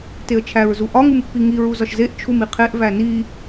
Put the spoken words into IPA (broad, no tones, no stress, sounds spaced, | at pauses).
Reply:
t e ə̯ t͡ʃʰ æ ɹ z u ʔ ɒ ŋ u m pː i ŋ i ɹ u z ɒ ʃ z e ʔ t͡ʃʰ u m i qʰ e ʔ v æ n i